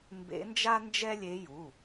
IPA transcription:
m b ḛ˧˥ n d͡ʒ a˥ n d͡ʒ ɛ˥ lʲ e˧˥ j u˩˧˩

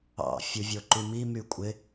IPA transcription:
ɑ̰ fʲ u vʲ o ǃ y m i m y kʷʼ ɪ

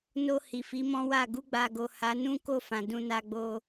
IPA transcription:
n o˧ h i˨ f i˨˦ m ɔ̃˦ w a˦˨ ɡ u˧ ɡ͡b a˨ ɡ o˨ h a˨˦ n ũ˦ k o˦˨ f ã˨ d ũ˧ n a˧ ɡ͡b o˧

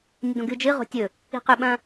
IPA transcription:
nʲ ɐ d õ ɡ ɨ d͡ʒ ɨ ʁ o̤ tʲ ɵ | i̤ q ʉ ɓ ɐ̃

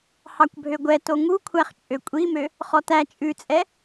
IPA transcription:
h ɑ kʷ bʱ ø ɡʷ ɛ t o ŋ u kʷʰ æ χ t͡ʃʼ ø kʷʼ i m ø | χ ɔ t æ t͡ʃʼ ʉ t͡sʼ ɛ

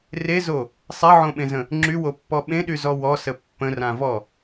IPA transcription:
r e z o | sˤ e ʕ õ ɓ ẽ z ə̃ | ŋ͡ǁ y w o pː ɔ ɓ ẽ ɗ y z ɔ w ɔ s ə pː ə̃ r ã v ɔ

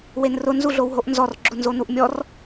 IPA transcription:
w e n r ʊ n z u ɮ o w ɦ o ʔ n z ɔ r ɡ͡ǁ ʊ n z o n u ʔ mʲ ɔ r

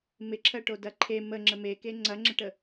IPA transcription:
m ɪ ǁʰ ɜ ʈ o d ɐ ǃʰ e m ə ŋ͡ǁ ə m e k e ŋ͡ǀ ɐ ŋ͡ǁ ɪ ʈ ə

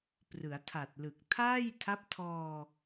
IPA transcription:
p r ɯ˩˦ a̯ tʰ a˨˩ t̚ l ɯ˨˩ k̚ tʰ aː˥˩ j tʰ a˦˥ p̚ tʰ ɔː˧

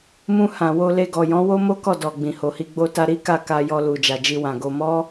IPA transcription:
m ũ˧ h ã˨ w o˧ l e˧ ɡ ɔ˨ j ɔ̃˨˦ w o˦ m o˦ k ɔ˦˨ d ɔ˨ ɡ͡b ĩ˨ h o˨ h i˧ ɡ͡b o˧ t a˧ ɾ i˦ k a˦˨ k a˧ j ɔ˧ l u˨ d͡ʒ a˨ d͡ʒ i˧ w ã˨ ɡ o˧ m ɔ˦

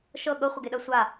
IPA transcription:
ʃ ɤ ɠ ɤ χʷ ɤ ɡ e ɗ ɜ sʷ a

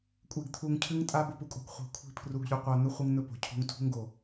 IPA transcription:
kʷʼ e˧ ɡ t̪ʰ u˧ ŋ cʰ ɨ˦ ŋ tʼ a˦ b o˧ p u˦ kʼ o̤˧ ɡ χʷ i̤˨˦ kʷʰ i̤˦˨ pʰ r u˧ ɡ ʎ ʉ˧ qʷ a˧ n̪ ɵ˦ χʷ ɨ˦ ŋ n̪ ɵ˦ p o̤˨ cʰ ṳ˧ ŋ tʰ ṳ˦ ŋ ɡ o˨

